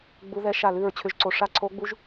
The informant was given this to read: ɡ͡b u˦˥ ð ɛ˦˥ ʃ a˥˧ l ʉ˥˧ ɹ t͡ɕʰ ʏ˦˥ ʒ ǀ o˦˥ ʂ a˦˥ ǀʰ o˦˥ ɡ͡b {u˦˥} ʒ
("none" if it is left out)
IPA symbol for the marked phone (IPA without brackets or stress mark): u˦˥